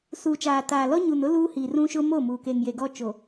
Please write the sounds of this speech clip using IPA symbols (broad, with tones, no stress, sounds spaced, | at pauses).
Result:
s uː˨ t͡ʃ aː˨ t aː˨ l ɔ˦ ɲ u˨ n ʊ˦ l uː˦ h iː˨ r ũ˦ ʃ ʊ˦ m o˦˨ m uː˨ k e˨ ŋ j e˨ ɡ ɔ˦ t͡ʃ o˨